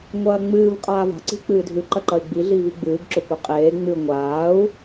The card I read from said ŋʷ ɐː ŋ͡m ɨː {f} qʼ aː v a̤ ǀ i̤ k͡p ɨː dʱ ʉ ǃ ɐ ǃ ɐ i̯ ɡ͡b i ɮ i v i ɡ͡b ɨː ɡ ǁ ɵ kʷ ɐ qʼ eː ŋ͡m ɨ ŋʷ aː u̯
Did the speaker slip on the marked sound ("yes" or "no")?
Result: yes